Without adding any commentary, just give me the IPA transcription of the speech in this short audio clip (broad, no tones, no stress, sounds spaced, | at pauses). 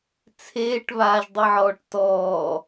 t͡sʰ eː ʈ β aː ʒ dˤ i ʕ ɔː ʈ t ɔː